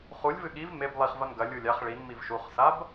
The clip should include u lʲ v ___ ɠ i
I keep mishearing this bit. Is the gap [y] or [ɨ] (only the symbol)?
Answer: ɨ